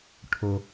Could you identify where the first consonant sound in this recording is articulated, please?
retroflex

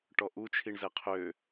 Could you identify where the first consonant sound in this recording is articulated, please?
retroflex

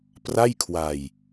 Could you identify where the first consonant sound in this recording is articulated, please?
labial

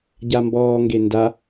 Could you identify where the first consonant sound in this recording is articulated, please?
palatal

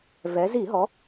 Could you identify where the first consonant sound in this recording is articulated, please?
labial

